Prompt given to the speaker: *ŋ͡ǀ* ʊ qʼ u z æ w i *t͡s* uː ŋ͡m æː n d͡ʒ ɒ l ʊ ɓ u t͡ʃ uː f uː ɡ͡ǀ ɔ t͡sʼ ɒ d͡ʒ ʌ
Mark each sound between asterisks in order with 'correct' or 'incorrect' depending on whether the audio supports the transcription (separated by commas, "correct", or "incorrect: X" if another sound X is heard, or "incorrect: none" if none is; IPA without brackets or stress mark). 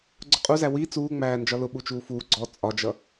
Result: incorrect: ɡ͡ǀ, correct